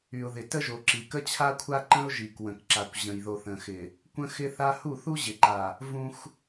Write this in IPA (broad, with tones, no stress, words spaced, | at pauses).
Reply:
y˨ʊ̯ðɪ˨tə˦ʒo˨ ǁi˨kə˦t͡ɕʰa˦kʷʰa˦ ǃə̃˦ʊ̯ʒi˨kwə̃˨k ǁa˨kʷ ʑə̃˨jðo˨θə̃˨xɪ˨ | kʷə̃˦xɪ˦θa˦ hu˦˨θu˦ʑɪ˨ǃa˨ | vũ˦x